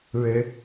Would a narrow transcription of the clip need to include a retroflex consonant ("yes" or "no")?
yes